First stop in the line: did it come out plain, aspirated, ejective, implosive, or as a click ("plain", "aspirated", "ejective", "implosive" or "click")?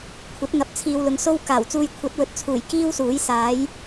aspirated